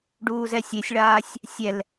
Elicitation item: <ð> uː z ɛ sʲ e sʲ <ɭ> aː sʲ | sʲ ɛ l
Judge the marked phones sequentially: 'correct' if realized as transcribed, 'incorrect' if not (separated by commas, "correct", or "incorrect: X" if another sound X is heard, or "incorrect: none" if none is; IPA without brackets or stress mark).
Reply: incorrect: ɖ, correct